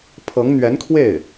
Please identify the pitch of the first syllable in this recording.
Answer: rising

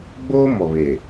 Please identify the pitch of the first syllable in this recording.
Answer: high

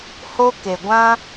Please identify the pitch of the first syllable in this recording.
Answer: high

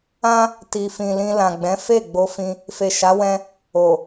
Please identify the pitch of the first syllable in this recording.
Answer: high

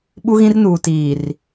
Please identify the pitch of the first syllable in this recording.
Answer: high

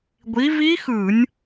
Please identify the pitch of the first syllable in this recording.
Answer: rising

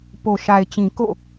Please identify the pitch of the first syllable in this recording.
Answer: low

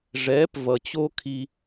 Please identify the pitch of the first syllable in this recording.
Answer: rising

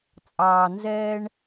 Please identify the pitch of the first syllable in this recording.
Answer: low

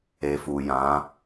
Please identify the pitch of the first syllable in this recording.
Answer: low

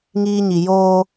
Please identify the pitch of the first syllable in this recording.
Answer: high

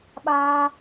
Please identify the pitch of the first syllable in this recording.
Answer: high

